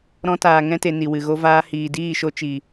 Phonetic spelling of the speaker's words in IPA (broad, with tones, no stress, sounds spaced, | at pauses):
ɾ ɔ̃˧ t aː˨ ŋ ɛ̃˧ t e˨ n i˨ w ɨ˨ ɣ o˧ v aː˧ h iː˨ d iː˦˨ ʃ o˧ t͡ʃ i˨